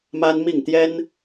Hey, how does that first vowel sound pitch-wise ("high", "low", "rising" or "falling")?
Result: high